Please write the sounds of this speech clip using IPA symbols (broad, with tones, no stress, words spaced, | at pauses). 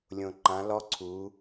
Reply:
lʲõ˩ǃã˩˧lɔ˧˥ ǀʰu˩˧